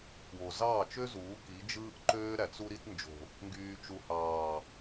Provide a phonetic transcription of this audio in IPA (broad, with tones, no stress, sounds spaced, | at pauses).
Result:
k w o˨ z ɑː˦˨ t͡ʃ ø˦ z uː˨˦ k i˨˦ d͡ʒ ɯː˦ ʔ ǃ øː˦ ɾ æ˨ t͡s u˧ ɾ i˧ t n d͡ʒ o̤˨ | ŋ ɡ yː˨ t͡ʃ u˨ h ɑː˨